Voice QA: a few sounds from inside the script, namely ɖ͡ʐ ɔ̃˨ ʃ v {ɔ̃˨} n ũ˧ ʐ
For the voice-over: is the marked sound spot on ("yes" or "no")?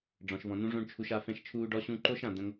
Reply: yes